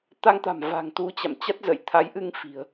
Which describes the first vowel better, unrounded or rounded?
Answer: unrounded